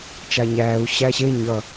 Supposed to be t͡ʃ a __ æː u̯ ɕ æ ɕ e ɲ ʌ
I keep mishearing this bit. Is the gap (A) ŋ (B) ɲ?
B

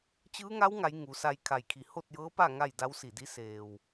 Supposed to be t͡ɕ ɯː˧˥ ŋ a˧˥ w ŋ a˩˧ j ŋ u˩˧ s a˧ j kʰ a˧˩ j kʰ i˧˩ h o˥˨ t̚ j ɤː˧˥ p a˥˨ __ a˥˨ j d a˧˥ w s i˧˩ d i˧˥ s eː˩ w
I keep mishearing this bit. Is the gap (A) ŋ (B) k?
A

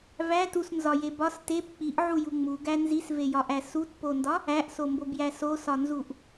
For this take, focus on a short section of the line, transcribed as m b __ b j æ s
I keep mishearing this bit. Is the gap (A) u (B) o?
B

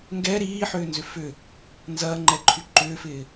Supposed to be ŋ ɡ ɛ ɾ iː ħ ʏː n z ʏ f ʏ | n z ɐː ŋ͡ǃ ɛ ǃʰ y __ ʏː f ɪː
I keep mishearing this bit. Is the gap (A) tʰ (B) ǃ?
B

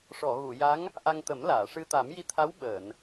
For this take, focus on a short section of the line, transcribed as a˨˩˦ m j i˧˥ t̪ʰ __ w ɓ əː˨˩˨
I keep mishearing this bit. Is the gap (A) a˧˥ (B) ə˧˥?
A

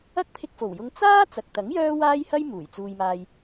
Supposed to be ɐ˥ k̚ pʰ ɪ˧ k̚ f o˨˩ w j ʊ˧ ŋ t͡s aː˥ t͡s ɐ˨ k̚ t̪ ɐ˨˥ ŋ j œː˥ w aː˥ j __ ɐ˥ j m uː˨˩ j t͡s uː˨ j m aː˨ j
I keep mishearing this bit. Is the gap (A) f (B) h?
B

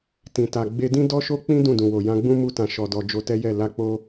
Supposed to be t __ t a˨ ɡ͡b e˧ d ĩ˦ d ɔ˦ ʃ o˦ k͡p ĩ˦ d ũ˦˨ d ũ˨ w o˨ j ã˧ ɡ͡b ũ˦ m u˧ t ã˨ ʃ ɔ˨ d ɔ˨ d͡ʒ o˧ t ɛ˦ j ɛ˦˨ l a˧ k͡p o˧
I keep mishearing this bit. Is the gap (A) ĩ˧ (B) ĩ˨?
B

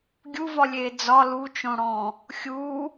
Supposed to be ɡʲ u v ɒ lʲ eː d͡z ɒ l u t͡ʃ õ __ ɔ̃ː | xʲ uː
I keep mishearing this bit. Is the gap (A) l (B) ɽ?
B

